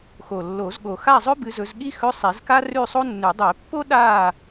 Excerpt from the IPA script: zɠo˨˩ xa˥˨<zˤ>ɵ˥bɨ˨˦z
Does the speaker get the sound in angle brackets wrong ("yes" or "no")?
no